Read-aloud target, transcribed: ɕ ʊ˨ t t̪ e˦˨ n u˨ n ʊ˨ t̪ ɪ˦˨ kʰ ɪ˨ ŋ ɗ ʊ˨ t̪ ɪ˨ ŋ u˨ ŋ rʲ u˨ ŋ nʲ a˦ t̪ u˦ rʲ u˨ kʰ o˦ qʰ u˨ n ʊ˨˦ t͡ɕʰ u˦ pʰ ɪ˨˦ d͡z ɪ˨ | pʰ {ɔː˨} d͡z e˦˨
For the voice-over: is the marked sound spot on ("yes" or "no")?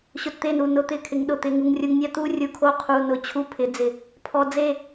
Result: no